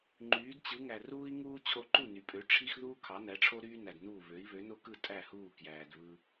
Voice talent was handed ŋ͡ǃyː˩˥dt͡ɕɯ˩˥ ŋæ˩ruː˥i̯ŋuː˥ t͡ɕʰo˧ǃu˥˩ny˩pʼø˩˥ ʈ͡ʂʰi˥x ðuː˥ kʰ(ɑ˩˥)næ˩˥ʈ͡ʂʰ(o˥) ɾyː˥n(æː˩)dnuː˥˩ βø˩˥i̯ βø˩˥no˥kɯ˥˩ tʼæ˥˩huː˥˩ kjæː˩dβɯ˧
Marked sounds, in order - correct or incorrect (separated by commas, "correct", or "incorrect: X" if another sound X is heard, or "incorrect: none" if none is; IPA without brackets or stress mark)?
correct, correct, incorrect: æ˩